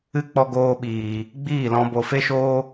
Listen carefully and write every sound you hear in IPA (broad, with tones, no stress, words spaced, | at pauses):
ɨ˦ k͡pɔ˧ɡoː˧ɓiː˨ | ɡ͡biː˦˨lɔ̃˧ bo˨fe˦ʃoː˦